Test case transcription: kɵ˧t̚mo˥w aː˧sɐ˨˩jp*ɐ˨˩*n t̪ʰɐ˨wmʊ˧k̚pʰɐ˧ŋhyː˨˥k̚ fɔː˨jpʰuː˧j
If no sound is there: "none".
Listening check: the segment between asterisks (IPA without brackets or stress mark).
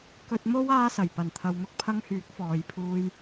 ɐ˨˩